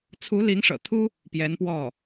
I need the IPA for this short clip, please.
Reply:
t͡sʰu˧˥li˧˥ŋʂɤ̰˨˩t̪ʰu˥ | pjɛ˧˥npwɔ˥˩

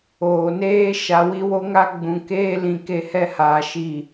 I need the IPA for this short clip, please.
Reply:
oː˨neː˦ ʃa˨ wi˦wo˦ŋa˦ ɡ͡bũ˨keː˦ lĩ˨ ke˦hɛ˦haː˨ ʃi˨

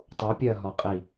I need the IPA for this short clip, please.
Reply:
tˤupʲɜɦɒqʼi

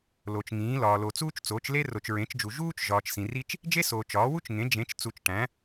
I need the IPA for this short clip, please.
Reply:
lo˨t͡ʃŋĩː˩˥lɒː˨ lo˨ t͡suː˥t͡ʃt͡soː˩˥t͡ʃ le˥ ro˨t͡ʃɹẽ˩˥t͡ʃd͡ʒu˨ ʒuː˥t͡ʃ ʒɒː˨t͡ʃsĩ˨ri˥t͡ʃ | d͡ʒe˥soː˨ t͡ʃɒː˩˥wu˥t͡ʃŋẽ˩˥ d͡ʒẽ˩˥t͡ʃ t͡su˨t͡ʃʈæ̃˩˥

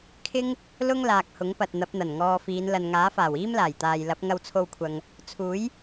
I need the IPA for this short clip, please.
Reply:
kʰɪ˥ŋ | lʊ˥ŋlaː˨k̚ hʊ˨˥ŋpɐ˨t̚ n̪ɐ˨˥p̚n̪ɐ˨˩nŋɔː˧fiː˨˧n lɐ˨nŋaː˨˥faː˨˩w iː˥mlaː˨˩jt̪aː˨jlɐ˨˥p̚ ŋɐ˧wt͡sʰo˧wkʷʰɐ˨ŋ | t͡sʰuː˨˥j

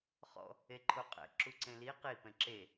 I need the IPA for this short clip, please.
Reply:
χɔ̰ | eǃʰoqʼɛ̰ ǁuǀẽli qi pɛ̃ǁe

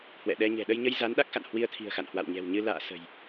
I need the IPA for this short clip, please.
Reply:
hwɛ̰˧˨ɗɛ˧ ɲɛ̤˨˩ɗə˧jɲə˧j za˨˦n ɗa˦˥k̚xa̰˧˨n hwi˧ə̯t̪ʰi̤˨˩ə̯xa̰˧˨n hwa̰˧˨wɲɛ̤˨˩wɲɨ˧ la̰ː˧˨ sə̤˨˩j

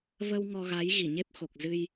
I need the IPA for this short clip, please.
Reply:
və˧w ŋɔ˧ɣa˨˦j ɣi˧˩ɲe˦˥p̚xo˨˩k̚zɨ˧j

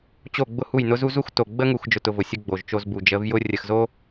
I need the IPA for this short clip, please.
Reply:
t͡ɕo˦˨ɡ͡bʊ˦hu˦˨j nʊ˦zu˦zu˦x to˨ɡ͡bə˦ŋu˨x d͡ʒʊ˦˨tʊ˦ vʊ˨sʲʊ˦ ɡ͡bo˨ʒt͡ʃo˦zbu˨ d͡ʒə˨˦vjʊ˦ rʲə˨xzo˦

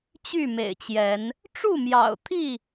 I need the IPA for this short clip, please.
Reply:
t͡ɕy˥˨mḛ˨˩ɪ̯t͡ɕjɛ˨˦n | ʈ͡ʂu˥˨mjɑ̰˨˩ʊ̯t̪ʰi˥˨

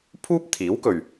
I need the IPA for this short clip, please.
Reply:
pʰuː˥p̚t̪ʰiː˨˥wkɵ˨ɥ

